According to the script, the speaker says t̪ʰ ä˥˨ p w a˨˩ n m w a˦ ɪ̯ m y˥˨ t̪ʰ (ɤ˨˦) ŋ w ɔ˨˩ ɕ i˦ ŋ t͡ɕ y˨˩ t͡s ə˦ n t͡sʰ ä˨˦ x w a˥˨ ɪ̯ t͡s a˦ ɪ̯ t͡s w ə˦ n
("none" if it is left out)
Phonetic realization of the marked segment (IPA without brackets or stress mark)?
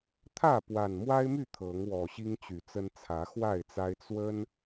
ɤ˨˦